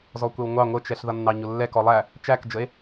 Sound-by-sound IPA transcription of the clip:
z ɔ kʷ ɛ w ŋʷ ɑ ŋʷ ə t͡ʃ ɛ ɬ ð ʌ nː ɑ ɲ ʊ lː ɛ k ɔ lˠ æ | t͡ʃ æ k d͡ʒ ə e̯

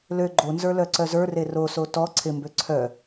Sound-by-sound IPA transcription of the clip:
l ø ɡ͡ǃ o n z ə˞ l œ ǀ œ z ə˞ r e r o s o t ɔ ǀʰ ɪ m b ø ǀʰ œ

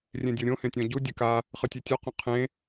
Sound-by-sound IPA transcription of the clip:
rʲ ẽ dʲ o ɾʲ õ h ẽ tʲ ɔ̃ ɟ u dʲ ɨ k a | χ ɨ tʲ e tʲ ɔ q õ qʰ ẽ

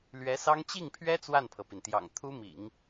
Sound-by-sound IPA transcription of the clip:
l ɥ ɛ˧˥ s ɑ˥ ŋ t͡ɕ i˥˩ ŋ pʰ ɥ ɛ˥ t͡s w a˥˩ n pʰ ɤ˩ p i˩ n t̪ j ɑ̰˨˩ ŋ t̪ʰ u˥ m ḭ˨˩˦ ŋ

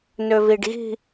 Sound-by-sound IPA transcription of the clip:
n ø v i ɖ ɣ i̤

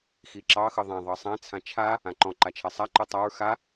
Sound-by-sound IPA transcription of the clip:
x i ǁ ɑ x ɯ ðˤ ã ðˤ ɑ sˤ ã t͡sʰ ã t͡ʃʰ a | ã ǃ ɔ̃ ǃ a t͡ʃʰ a sˤ a ǃ ɯ tˤ a ɹ x a

